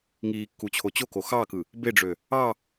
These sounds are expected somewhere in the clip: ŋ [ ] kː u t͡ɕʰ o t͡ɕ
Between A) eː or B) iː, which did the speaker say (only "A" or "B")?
B